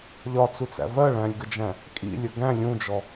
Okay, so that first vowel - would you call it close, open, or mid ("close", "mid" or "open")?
open